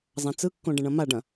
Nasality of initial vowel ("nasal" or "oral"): nasal